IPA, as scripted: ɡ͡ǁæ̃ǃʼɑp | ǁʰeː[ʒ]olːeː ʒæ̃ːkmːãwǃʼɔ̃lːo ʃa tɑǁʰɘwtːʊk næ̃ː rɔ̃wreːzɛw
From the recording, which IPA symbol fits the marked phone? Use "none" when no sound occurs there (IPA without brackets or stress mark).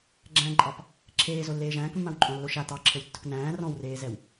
z